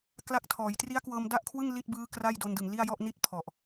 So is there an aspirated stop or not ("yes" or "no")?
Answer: yes